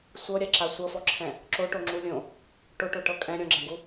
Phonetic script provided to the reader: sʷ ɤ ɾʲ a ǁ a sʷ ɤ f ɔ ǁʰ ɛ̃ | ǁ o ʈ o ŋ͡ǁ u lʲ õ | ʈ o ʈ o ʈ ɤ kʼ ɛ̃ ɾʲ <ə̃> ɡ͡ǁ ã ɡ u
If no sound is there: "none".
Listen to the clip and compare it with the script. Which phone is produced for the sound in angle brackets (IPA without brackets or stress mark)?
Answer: ɔ̃